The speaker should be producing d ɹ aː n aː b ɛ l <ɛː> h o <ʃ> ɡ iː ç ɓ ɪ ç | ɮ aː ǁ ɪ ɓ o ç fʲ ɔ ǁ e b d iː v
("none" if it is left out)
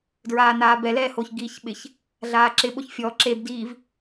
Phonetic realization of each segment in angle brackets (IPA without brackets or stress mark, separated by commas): ɛː, ç